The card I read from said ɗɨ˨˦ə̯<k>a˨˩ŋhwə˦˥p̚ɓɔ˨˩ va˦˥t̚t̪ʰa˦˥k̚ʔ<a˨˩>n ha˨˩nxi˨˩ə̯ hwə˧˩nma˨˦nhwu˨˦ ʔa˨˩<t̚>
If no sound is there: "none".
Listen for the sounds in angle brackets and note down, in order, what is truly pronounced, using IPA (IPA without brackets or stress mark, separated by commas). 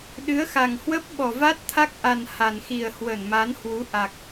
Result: x, a˨˩, k̚